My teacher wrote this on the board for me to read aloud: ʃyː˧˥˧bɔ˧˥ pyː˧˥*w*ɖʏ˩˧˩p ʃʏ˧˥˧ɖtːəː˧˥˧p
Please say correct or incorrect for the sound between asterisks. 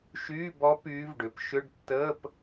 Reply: incorrect